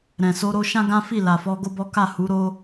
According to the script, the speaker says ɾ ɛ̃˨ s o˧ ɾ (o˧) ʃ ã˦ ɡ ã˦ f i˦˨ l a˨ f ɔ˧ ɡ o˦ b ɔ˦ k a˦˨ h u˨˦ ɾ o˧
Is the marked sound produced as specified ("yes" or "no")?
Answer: yes